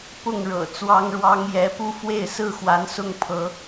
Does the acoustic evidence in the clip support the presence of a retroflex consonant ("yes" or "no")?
yes